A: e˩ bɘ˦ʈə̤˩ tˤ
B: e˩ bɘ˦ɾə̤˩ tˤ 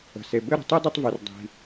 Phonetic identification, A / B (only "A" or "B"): B